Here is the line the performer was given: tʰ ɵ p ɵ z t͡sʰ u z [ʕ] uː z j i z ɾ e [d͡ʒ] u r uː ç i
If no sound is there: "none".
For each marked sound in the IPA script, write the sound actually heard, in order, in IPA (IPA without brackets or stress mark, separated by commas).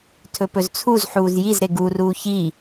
ħ, ɡ